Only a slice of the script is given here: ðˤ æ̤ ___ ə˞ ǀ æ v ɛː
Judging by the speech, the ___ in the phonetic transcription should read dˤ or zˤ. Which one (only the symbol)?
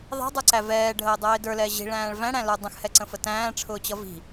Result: dˤ